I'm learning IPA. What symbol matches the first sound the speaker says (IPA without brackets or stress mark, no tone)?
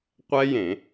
qʷ